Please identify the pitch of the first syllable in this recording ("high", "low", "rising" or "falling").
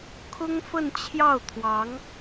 high